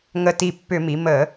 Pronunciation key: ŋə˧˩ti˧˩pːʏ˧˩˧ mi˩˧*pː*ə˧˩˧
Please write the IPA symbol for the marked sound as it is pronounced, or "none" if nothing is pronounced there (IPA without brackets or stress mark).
m